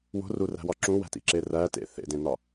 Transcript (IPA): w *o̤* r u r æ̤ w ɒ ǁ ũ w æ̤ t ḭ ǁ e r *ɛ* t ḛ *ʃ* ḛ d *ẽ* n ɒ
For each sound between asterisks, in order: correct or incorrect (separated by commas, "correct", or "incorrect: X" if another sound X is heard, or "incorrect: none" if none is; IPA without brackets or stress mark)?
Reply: correct, incorrect: æ, incorrect: θ, correct